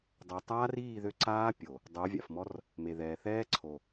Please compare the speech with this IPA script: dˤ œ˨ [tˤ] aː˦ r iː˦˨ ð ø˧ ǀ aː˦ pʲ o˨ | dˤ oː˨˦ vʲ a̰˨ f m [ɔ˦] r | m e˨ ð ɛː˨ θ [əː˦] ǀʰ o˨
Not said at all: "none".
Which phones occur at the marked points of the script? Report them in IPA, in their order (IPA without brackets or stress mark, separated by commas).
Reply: tˤ, ɔ˦, ɛː˦